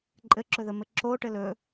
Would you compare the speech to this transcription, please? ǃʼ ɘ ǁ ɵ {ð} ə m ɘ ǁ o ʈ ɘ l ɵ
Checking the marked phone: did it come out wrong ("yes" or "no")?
no